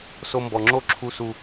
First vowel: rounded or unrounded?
rounded